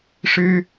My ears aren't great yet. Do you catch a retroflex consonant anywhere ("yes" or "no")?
yes